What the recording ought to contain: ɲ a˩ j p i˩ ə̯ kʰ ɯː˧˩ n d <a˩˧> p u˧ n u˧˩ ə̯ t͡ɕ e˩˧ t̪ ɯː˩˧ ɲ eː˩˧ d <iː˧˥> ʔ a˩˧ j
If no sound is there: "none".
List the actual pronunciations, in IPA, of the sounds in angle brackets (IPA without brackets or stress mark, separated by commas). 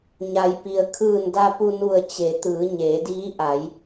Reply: a˧, iː˧˥